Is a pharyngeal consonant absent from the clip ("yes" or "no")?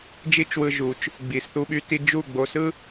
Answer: yes